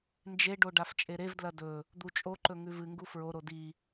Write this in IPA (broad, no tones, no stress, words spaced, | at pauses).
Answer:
nd͡ʒeɖo ɖaft͡ʃʼeɾevdlɐ dɵ | d̪ut͡ʃʼoǃɵ ŋʉvɨŋɡu fɹoɾo di